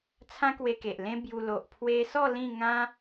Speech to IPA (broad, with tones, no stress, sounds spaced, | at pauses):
t͡sʰ ã˦ k w e˧ k e˨ ʔ l ẽ˦ b j u˧ l o˨ ʔ pʰ w e˧ s ɔ˥˧ l ĩ˥˧ ŋ ã˦